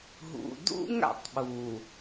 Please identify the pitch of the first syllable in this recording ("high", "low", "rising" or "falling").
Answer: low